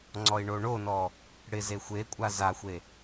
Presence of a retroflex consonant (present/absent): present